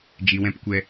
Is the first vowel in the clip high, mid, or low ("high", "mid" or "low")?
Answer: high